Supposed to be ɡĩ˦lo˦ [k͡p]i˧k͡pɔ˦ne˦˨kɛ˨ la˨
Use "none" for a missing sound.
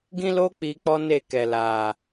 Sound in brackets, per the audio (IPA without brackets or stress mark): k͡p